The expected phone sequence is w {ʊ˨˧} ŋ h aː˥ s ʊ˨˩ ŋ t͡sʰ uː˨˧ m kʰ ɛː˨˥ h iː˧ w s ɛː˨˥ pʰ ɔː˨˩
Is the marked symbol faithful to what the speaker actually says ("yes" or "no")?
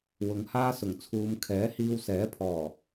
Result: yes